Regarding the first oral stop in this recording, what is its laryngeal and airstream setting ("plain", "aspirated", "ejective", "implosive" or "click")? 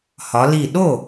implosive